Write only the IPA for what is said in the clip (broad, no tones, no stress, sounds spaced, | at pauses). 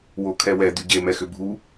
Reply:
w o kʰ ɛ w ɛ d̪ y ɟ e m ɛ x ʏ bʱ u